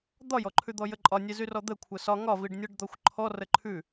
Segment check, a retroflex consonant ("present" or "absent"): present